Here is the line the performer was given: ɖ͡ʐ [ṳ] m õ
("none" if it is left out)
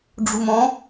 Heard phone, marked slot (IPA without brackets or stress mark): ṳ